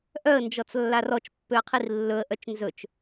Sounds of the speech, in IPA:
ʔœə̯nd͡ʒɔt͡slːar ɔt͡ʃpːøə̯qʰir lːɵə̯ʔœt͡ʃ nzɵt͡ʃ

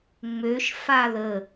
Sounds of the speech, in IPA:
ŋ͡møʃ faðə

